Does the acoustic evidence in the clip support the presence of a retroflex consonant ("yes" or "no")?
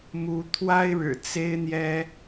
yes